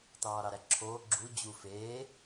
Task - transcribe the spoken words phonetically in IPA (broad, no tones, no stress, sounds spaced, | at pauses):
t ɑː ɾ ɑ ɾ æ ǁʰ oː ɡ͡ǁ u d͡ʑ u f eː